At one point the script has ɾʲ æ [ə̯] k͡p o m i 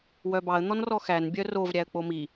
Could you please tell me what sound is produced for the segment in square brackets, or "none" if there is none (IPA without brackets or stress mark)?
ə̯